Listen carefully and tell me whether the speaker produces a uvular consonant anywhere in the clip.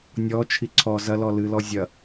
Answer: no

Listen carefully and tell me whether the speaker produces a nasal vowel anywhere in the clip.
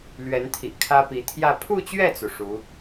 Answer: no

